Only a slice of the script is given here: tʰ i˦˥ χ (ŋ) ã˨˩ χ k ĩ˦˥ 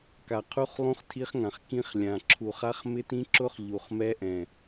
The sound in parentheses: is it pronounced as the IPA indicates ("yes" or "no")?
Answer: yes